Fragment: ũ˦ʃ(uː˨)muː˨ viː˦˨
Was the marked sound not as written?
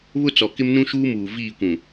yes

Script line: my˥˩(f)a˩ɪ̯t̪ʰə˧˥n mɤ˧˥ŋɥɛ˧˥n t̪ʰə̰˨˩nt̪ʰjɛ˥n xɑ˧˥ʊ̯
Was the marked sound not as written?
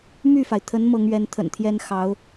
no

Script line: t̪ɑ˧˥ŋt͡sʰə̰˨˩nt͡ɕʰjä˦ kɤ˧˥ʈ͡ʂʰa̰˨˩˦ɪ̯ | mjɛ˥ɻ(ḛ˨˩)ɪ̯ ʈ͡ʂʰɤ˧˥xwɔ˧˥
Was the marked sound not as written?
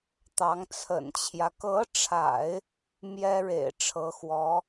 no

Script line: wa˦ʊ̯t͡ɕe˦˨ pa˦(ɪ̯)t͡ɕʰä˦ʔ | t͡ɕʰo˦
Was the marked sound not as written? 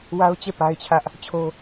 no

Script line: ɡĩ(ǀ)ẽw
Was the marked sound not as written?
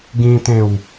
yes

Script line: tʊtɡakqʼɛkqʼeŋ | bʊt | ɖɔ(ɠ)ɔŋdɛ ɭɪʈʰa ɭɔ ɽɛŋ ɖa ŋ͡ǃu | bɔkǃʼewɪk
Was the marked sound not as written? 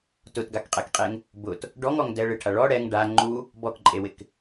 yes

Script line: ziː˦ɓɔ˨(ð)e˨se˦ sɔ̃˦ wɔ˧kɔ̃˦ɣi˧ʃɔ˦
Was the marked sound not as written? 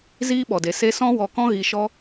yes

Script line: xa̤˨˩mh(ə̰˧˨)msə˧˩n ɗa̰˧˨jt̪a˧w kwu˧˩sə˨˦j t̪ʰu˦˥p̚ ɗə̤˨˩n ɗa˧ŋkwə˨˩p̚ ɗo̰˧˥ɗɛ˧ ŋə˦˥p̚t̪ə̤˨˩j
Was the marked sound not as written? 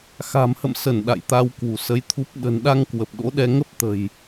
no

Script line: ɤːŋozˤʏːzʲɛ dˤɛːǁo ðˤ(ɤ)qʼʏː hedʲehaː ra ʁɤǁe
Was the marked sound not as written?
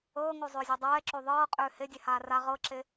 yes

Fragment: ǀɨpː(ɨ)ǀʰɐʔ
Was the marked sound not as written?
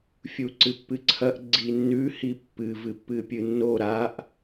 no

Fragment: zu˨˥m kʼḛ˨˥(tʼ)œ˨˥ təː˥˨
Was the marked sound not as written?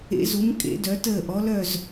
yes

